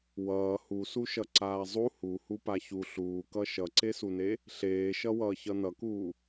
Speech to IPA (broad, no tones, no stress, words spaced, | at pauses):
wʌː husu ʃʌǀaːzˤu huhu paçu ɬuːkʌ ʃʌǀesune | ɬeːʃʌ wʌːçʌnʌkuː